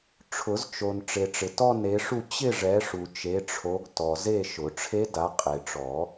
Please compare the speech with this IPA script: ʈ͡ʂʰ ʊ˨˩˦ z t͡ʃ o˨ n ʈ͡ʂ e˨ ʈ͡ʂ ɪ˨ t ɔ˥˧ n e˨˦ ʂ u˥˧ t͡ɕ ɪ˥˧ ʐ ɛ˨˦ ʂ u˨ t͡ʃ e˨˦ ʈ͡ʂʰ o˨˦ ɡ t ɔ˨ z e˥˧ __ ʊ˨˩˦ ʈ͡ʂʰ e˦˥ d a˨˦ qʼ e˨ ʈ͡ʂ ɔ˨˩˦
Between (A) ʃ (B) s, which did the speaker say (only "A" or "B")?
A